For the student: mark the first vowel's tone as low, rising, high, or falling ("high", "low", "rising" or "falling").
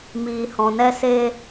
low